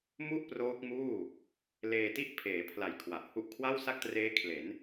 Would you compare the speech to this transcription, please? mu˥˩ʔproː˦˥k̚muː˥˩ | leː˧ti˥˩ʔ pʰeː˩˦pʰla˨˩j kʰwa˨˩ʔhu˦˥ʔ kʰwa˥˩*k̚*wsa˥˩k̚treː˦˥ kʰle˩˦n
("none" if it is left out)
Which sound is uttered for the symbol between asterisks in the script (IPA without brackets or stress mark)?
none